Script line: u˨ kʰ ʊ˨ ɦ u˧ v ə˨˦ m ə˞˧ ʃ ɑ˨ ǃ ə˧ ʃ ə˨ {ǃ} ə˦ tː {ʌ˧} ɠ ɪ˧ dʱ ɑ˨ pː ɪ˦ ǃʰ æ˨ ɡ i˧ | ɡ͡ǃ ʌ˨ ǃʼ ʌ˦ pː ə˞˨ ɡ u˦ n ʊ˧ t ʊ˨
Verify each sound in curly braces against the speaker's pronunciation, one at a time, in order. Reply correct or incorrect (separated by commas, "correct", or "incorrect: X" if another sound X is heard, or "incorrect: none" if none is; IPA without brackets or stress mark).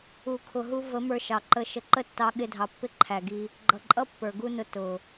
correct, incorrect: ɑ˧